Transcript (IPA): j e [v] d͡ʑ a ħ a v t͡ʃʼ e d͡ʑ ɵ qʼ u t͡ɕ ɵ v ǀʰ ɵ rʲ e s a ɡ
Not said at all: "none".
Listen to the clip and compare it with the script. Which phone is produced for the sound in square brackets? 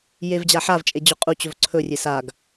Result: v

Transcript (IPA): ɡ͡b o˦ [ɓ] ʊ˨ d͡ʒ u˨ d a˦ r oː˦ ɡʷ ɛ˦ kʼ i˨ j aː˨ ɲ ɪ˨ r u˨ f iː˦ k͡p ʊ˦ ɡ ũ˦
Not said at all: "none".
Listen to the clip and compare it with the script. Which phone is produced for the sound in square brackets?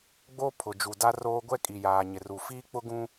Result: pʰ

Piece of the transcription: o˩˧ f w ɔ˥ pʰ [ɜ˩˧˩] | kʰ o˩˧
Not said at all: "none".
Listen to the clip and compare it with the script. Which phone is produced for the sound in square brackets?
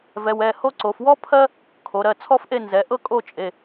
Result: ɜ˥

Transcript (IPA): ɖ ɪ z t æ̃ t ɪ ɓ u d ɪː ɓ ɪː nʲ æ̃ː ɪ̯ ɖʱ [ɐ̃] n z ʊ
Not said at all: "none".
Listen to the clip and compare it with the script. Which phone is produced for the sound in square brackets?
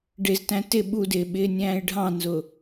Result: ɑ̃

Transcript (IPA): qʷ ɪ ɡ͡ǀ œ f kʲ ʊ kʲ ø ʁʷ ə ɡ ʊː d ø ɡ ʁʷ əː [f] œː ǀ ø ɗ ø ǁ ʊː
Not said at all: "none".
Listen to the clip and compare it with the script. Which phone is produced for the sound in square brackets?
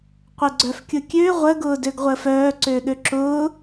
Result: f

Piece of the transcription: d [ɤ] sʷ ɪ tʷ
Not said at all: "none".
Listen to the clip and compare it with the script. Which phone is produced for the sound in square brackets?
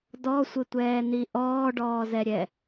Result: ɔ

